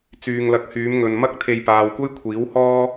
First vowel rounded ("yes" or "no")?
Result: yes